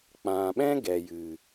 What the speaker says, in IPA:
k͡p ã˨ ɓ ɛ̃˦ ɡ ɛ˨ j ɨ˨

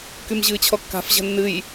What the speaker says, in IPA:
k y m ʑ ɨː t͡ɕʰ ɔ kː a̤ f ʑ ə̤ nː ɨ j

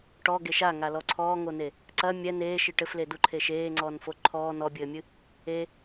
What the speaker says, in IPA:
ʈ ɔ ɡ e ʃ a ŋ a l ɔ ǀʰ ɔː ŋ o n e | ǀ ɐ mʲ ɛ n eː ʃ ɨ ʈ ɘ f l e d u ǃʰ e ʃ eː ŋ͡ǀ ɔː n f o ǃʰ ɔː n ɔ bʲ ɘː mʲ ɨ | e

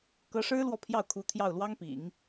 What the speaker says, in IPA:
k ɤ˧˥ ʂ ɻ̩˥ l w ɔ˥˧ pʰ j ɑ˥˩ ʊ̯ kʰ u˧˥ t̪ʰ j ɑ˥˩ ʊ̯ l w ɑ˥ ŋ p ḭ˨˩˦ ŋ

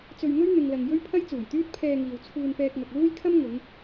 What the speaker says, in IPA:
t͡s ɵ˧ ɥ ŋ ɵ˥ ɥ n̪ ɪ˨ ŋ l ɐ˨ ŋ j ɵ˥ ɥ pʰ ɐ˥ j t͡s uː˨˩ j t̪ yː˥ t̚ pʰ ɛː˧ ŋ iː˨ w t͡sʰ uː˧ n p ɛː˧ k̚ ŋ ɐ˨ k̚ l uː˥ j kʰ ɐ˥ m ŋ ʊ˨˧ ŋ

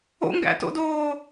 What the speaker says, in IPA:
o̰ ŋ ɡ æ̰ t o̰ d oː

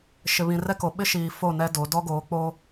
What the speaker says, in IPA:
ʃ ɪ˨ β ĩ˨ r ɛ˦ k o˨ ɓ ɪ˦ ʃ iː˨ f o˦˨ n ɛ˦ d o˨˦ d ɔ˦ ɡ oː˨˦ k͡p o˦

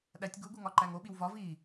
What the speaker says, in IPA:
ɗ æ tʲ ɡ u ɡ u ŋ ɒ ǃ æ ŋ o ɓ i w v ɒ v i

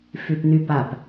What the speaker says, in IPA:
f y p n y p a p

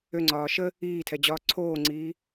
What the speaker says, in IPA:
ø ŋ͡ǀ ɒː ʃ ə | iː tʰ ɛ d͡ʑ ɒː ǀʰ oː ŋ͡ǀ iː

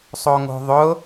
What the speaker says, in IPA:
sˤ o ŋ o̤ ðˤ ʊ

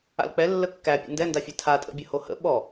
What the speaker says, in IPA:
a̰ l k͡p ɛ lː ə kː æ pʲ ə̰ n d ɛ n d a fʲ ɛ tʰ a tʼ ə̰ bʲ ə h o h ə̰ ɓ ɔ

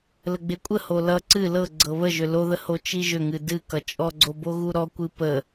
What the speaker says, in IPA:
l ə ɡ͡b e kʷʼ ə h o l ʌ ǀ ɨ l ɤ ɡ͡ǀ ɤ β ə ʒ ʏ l o ð ə h o t͡ʃ i ʒ ʏ ŋ ɨ d ɨ k ʌ t͡ʃʼ ɔ ɡ͡ǀ o b o ɣ u ɾ ɔ kʷ ɨ p ə

